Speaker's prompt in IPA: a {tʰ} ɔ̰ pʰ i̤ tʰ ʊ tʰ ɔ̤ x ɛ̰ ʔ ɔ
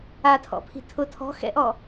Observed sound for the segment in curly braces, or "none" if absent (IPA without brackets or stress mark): tʰ